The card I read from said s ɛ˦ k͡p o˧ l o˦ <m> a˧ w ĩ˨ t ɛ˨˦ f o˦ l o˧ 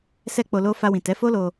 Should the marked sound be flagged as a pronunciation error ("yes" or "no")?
yes